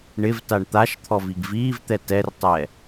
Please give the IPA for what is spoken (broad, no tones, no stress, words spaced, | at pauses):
ɳɪvtaɳ t̪aʃ t̪ʰɔviɡviːvt̪ɛ tɛrtˤɛ